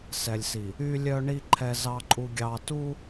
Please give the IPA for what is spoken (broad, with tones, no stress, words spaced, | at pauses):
sɛ˨lʲsi˨ | y˨lʲœ˨ɳi˨ ǃʰɛ˨zɑ˨ǃʼu˨ ɡʲɑ˨tu˦